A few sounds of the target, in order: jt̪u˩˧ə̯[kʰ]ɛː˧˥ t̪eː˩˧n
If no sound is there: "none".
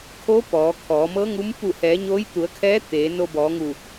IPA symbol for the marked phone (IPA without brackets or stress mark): kʰ